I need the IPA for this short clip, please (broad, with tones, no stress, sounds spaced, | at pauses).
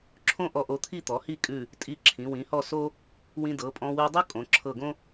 ǁʰ õ˥ ʔ ɔ˧ ʔ o˧ t̪ʰ i˥˧ t̪ ɔ˩˧ h i˥˧ kʼ ʉ˧˩ | tʼ i˧ ǁʰ ĩ˩˧ w ĩ˩˧ h ɔ˥˧ s o˥ | w ĩ˧ d ɤ˩˧ pʼ ɔ̃˧ w ʉ˧ dˤ ɤ˥ kʼ õ˩˧ ǁʰ ɤ˧˩ ɡ õ˥